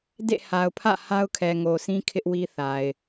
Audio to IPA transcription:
d ḛ˦˨ h a˨ ʊ̯ pʰ ä̰˦˨ h a˦ ʊ̯ kʰ ɛ˨ ŋ o˨ sʰ ĩ˦ kʰ ɪ˦ ʔ w i˦ θ a˨ ɪ̯

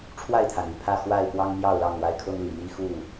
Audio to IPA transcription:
ʈ͡ʂʰ w a˥˨ ɪ̯ t̪ʰ a˩ n y˥˨ pʰ ä˥˨ x w a˥˨ ɪ̯ p w ɑ˦ ŋ m j ɑ˥˨ ʊ̯ l ɑ˥˨ ŋ w a˦ ɪ̯ kʰ ɤ˦ ŋ l i˨˩ m i˦ x u˥˨

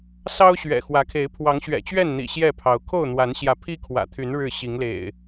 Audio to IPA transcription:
s ɑ˦ ʊ̯ ɕ ɥ ɛ̰˨˩ x w ä˨˦ kʰ e˨˦ ɪ̯ pʰ w ɑ˨˦ ŋ ɕ ɥ ɛ̰˨˩ t͡ɕ ɥ ɛ˥˨ n n̪ ḭ˨˩ ɕ j ɛ˥˨ pʰ ɑ˨˦ ʊ̯ kʰ o˥˨ ʊ̯ n̪ w a˨˦ n ɕ j ä˨˦ pʰ i˦ kʰ w ä̰˨˩ t̪ʰ y˨˦ n ɻ ɻ̩˥˨ ɕ i˨˦ ŋ l ḛ˨˩ ɪ̯

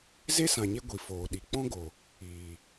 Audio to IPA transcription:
z e˦ s ã˨ ɲ e˧ ɡʷ i˨ f oː˨ ɗ i˨ k͡p ɔ̃˦ ɡ o˨ | iː˨

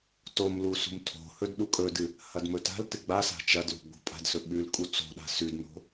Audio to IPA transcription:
t o m l u s ṳ m tʰ o̤ h ɵ d ɗ u kʼ ɵ d ɨ | h ɐ d m ɵ t a̤ l t ɨ ɡ͡b a s a̤ t͡ʃ ɐ d l ṳ ɡ͡b o̤ pʼ a̤ d s ɵ ɓ ʉ l kʼ u t͡s o̤ ɗ a̤ s ʉ d n o̤

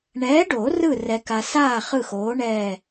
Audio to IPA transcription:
ɳ ɛː˨˥ ɖ o˨˩˦ r ɯ˦˨ r ɛ˨ k a˨ s aː˦˨ χ ɯ˦˨ x oː˨˥ ɳ ɛː˦˨

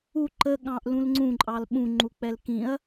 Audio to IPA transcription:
u ǃ ə ɠ ɑ̃ ʔ l ũ l ŋ͡ǀ ũ ǃʼ ɑ l ɓ ũ ŋ͡ǃ u k͡p ɛ l k ĩ ɐ̯

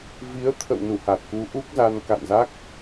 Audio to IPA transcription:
v i˨˦ ə̯ t̪ʰ ə̰˧˨ w n u˧˩ h a˨˩ t̚ k u˨˦ ʔ u˦˥ k̚ z a˧ n k a̰˧˨ n z a˦˥ k̚

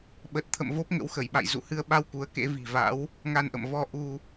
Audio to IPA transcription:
ɓ ə˨˩ t̚ t̪ʰ ə̰˧˨ m v o˦˥ p̚ ŋ ə̰˧˥ w x ə˧˩ j ɓ a̰˧˨ j z ṵ˧˨ h ɨ˧ ə̯ ɓ a˧ w k u˨˦ ə̯ k ḛ˧˥ v i̤˨˩ v a̰˧˥ w | ŋ a˧ n ʔ ə̰˧˨ m v ɔ˧ ʔ u˧

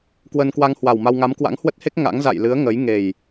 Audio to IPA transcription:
k w ə˧ n k w a˧ ŋ h w a˨˩ w m a˧ w ŋ a˨˦ m k w a̰˧˥ ŋ h w ə˦˥ t̚ h e˦˥ k̚ ŋ a̰˧˥ ŋ z a̰˧˨ j l ɨ˨˦ ə̯ ŋ ə˨˦ j ŋ e˨˩ j

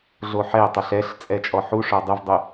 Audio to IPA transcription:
ɮ o ħ ɛ ə̯ tˤ o ɬ ɛ ɬ t͡sʼ ɛ t͡ʃʼ ɔ ħ u ʂ ɔ dˤ ɪ v dˤ ʊ

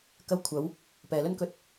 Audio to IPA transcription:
k ɐ˧ w kʷʰ ɐ˨˧ w | p ɛː˨ l ɵ˥ n k ɵ˧ t̚

